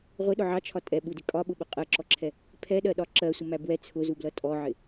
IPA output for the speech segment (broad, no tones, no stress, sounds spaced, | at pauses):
ʁʷ ɪ ɗ ʊ ʕ ɑ t͡ʃʰ ɒ tʼ ɛ ɓ u d ɪ kʼ ɒ ɓ ʊ ɓ ʊ qʼ ɜ ǁ ɔ ǁʰ ɛ | pʰ ɛ ɗ ɜ ɗ ɒ ǁ ɜ sʷ ə m æ b w ɛ t͡sʰ ʊ z u b l ʌ tʼ ɔ ʕ ɪ